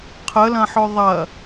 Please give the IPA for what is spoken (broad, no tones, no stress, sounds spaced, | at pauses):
qʰ ə l ɐ̃ ħ ɵ ðˤ ɐ